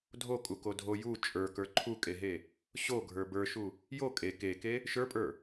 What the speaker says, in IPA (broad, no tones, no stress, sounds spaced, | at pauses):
dʱ o kʼ u k o dʱ o j u t͡ʃʼ ə˞ k ə˞ ǃʰ u kʼ e ɦ e | ɕ o ɡʱ ə˞ b ə˞ ʃ u | j o kʼ e k e k e | ʃ ə˞ pʼ ə˞